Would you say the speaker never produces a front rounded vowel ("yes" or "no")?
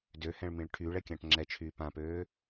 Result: no